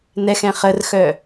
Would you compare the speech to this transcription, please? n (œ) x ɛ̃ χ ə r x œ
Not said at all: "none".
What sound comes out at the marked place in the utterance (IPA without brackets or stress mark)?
ɛ